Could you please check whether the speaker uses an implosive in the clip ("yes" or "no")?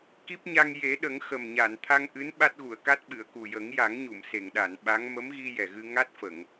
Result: yes